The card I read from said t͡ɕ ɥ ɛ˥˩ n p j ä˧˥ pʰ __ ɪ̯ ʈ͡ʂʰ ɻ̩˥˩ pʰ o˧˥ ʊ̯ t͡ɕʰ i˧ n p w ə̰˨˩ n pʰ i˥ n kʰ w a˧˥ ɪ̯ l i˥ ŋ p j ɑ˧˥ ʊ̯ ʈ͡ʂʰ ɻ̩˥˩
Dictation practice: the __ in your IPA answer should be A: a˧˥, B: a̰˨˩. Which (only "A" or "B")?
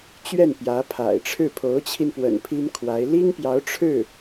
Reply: B